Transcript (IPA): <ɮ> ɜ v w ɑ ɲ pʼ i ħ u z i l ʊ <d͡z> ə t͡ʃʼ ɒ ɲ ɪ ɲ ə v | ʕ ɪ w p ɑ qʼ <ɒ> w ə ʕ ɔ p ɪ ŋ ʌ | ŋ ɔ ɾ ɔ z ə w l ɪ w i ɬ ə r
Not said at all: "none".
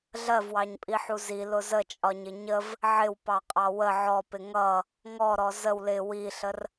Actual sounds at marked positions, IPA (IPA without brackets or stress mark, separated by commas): ɮ, z, ɑ